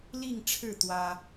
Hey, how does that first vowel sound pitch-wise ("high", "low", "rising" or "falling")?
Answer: falling